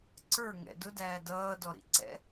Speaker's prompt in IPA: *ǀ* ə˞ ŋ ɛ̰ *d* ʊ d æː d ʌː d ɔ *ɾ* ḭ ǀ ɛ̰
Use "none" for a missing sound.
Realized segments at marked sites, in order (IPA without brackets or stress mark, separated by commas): ǀ, d, ɾ